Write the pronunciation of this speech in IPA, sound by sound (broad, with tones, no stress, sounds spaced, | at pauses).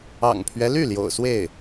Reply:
ɑ̰˨˩ ŋ pʰ ɥ ɛ˦ l y˥˩ l j o̰˨˩ ʊ̯ s w e˥˩ ɪ̯